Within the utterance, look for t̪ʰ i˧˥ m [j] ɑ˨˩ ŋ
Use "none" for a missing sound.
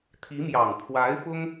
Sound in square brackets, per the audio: j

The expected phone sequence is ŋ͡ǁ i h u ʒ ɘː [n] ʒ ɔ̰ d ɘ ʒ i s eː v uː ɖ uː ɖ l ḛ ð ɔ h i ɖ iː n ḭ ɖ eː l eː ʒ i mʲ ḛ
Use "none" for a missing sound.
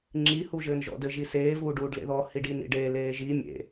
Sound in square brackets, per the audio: n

